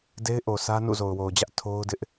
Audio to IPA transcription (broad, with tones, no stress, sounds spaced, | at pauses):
d e˦ ɪ̯ ʔ o˨ sʰ ä˦ n ṵ˦˨ z o˨ ʊ̯ w o˨ ʊ̯ d͡ʑ ä˦ ʔ tʰ o˦ ʊ̯ d ɪ˦ ʔ